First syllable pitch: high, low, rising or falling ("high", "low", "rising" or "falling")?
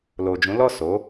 low